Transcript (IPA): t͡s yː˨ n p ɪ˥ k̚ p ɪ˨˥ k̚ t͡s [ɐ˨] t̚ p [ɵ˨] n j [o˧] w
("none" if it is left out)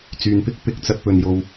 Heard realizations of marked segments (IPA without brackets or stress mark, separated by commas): ɐ˧, ɵ˨, o˧